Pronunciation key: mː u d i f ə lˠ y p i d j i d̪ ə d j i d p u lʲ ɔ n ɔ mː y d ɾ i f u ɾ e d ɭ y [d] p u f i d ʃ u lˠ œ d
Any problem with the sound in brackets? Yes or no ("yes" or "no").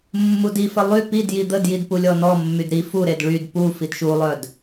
no